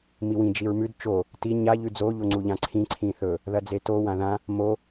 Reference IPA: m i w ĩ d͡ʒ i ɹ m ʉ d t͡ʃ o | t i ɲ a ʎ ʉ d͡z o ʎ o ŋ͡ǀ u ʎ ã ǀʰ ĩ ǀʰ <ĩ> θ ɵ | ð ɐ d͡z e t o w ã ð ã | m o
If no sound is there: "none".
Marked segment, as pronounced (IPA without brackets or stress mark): ĩ